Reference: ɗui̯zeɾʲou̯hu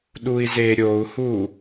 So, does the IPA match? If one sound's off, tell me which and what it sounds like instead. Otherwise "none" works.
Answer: none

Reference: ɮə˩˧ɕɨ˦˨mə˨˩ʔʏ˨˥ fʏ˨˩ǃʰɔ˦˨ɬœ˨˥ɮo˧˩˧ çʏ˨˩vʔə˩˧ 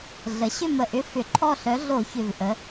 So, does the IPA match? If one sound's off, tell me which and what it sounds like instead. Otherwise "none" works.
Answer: ɨ˦˨ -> ʏ˦˨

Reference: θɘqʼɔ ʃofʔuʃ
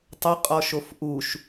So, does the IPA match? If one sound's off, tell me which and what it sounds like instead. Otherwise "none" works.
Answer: θ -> tˤ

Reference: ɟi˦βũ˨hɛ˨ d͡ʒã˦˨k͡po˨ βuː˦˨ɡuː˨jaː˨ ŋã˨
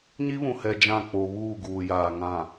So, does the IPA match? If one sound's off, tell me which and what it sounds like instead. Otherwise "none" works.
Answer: ɟ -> ɲ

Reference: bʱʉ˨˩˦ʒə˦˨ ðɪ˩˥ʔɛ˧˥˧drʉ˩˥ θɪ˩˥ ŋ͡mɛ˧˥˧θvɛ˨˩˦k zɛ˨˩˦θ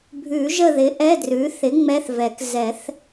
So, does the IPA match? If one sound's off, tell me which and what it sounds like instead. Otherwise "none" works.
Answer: none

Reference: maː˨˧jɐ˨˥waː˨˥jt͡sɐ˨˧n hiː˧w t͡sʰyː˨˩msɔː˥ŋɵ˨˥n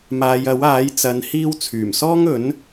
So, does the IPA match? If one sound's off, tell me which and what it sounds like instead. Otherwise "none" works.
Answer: none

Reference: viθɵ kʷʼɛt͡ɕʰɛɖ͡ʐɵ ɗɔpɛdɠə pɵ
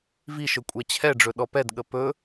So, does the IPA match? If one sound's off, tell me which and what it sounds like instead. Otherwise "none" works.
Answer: θ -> ʃ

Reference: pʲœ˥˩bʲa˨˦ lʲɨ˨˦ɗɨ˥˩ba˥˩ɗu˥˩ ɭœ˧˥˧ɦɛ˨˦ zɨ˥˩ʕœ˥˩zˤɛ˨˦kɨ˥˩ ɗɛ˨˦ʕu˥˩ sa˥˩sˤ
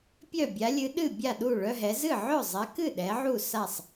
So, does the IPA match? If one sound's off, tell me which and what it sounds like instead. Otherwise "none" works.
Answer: b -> bʲ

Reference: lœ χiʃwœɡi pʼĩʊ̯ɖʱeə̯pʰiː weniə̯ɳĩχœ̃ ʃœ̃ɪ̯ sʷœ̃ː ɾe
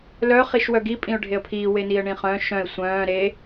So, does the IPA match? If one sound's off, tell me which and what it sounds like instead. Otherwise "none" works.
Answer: none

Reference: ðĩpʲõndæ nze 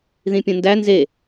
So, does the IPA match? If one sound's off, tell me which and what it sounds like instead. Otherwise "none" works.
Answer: none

